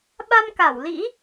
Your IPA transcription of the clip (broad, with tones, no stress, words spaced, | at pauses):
ɓa˧mka˧˩wlḭ˧˥